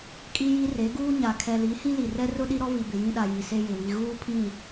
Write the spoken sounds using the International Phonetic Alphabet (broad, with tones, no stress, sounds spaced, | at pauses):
kʼ i˦ j i˦ r e˨˦ ɡ uː˦ ɲ a˨ kʰ ɛ˨ l i˨˦ h ĩ˦ l i˨ r ɛ˦ r ʊ˦ ɗ i˦ ɾ ɔ˦ v i˨ b ɪ˨ j ĩ˦ ɗ a˨ j i˨ s e˦ j ɪ˨ w i˨ ɣ uː˦ pʰ ĩ˦˨